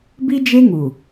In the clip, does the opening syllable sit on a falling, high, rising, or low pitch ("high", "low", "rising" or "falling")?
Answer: high